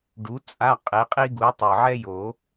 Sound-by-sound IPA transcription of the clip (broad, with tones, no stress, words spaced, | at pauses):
ɖu˨˥t͡sʼa˧˥˧ qʼe˨˥qʼi˥ɡu˨˥ tˤɯ˨˩ʕɛ˥jo˨˩˦